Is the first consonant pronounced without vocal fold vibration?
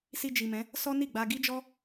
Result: yes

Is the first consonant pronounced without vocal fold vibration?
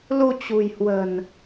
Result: no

